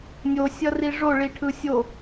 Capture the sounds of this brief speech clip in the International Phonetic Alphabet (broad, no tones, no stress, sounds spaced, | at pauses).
nʲ o sʲ ʌ r i ʐ o ɭ i ʈʰ ɯ sʲ o